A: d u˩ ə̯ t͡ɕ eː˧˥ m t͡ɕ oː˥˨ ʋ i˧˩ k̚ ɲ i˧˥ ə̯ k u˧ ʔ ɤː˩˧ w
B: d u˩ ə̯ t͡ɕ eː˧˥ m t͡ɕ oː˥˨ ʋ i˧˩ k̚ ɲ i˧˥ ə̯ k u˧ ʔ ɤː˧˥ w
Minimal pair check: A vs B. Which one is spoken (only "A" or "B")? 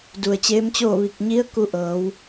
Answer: A